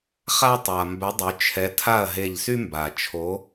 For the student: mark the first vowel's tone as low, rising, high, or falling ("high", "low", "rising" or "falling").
high